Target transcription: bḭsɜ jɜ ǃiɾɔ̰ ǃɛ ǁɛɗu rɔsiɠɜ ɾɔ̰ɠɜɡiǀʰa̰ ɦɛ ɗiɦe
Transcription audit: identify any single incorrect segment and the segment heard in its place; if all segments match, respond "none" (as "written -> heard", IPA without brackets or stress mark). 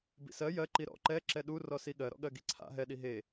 none